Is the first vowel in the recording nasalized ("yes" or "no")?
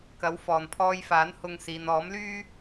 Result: no